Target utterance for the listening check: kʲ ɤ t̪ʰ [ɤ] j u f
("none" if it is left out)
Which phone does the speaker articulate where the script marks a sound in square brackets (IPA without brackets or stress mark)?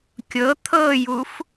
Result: ɤ